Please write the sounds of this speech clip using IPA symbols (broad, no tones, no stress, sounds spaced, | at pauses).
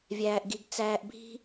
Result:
vʲ æː ʔ ɡ i ɡ t͡s æː ʔ bʱ i̤